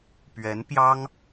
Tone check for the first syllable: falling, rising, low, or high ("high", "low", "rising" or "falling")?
rising